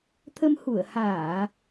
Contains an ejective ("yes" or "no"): no